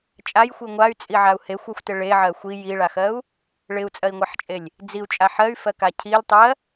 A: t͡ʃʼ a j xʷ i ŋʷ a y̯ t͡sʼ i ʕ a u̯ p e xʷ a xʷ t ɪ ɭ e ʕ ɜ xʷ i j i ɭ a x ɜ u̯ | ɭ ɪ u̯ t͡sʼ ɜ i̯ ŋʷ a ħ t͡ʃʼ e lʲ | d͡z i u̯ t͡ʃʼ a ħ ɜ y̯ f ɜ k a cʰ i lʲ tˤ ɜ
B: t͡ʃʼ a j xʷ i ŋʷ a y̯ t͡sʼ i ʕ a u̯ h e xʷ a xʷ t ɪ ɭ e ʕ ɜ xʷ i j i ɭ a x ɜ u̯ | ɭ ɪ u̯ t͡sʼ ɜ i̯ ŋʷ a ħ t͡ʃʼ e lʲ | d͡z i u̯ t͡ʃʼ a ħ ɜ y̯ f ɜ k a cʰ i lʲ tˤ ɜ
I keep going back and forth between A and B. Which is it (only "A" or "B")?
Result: B